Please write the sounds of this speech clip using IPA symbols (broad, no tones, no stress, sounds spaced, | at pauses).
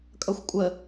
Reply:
kʼ ʌ xʷ kʷʼ ə